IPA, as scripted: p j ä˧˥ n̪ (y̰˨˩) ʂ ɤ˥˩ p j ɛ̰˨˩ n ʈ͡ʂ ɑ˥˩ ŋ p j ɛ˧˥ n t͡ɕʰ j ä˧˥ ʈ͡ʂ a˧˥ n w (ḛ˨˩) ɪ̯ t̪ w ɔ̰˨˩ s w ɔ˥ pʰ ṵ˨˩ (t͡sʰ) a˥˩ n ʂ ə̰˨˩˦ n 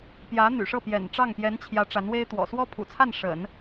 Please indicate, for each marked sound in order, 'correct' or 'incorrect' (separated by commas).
correct, incorrect, correct